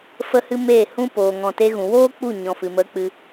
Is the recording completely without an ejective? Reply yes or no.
yes